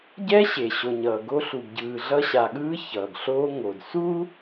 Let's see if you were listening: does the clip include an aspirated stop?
no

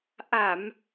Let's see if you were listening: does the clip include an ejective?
no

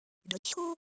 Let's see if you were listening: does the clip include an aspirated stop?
yes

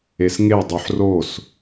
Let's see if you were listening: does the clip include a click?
no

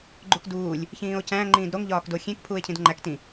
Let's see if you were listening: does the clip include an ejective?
no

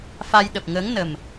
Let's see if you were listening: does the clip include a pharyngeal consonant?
no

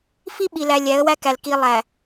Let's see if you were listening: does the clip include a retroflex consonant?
no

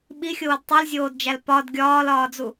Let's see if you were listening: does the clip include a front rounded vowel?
no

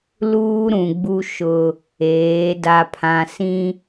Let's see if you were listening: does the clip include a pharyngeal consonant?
no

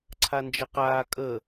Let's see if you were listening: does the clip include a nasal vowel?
no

